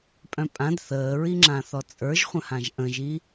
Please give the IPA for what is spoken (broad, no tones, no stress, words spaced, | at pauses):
pʼœ̃pʼãd θəːɹiŋ͡ǁãθɔ t͡sʼə˞ʒχʷə̃hãʒ ʔə̃ʒi